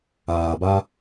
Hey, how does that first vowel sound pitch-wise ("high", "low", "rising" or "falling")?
low